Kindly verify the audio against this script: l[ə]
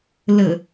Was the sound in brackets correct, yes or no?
yes